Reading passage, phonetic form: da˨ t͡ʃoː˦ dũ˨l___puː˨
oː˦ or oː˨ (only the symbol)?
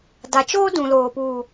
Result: oː˨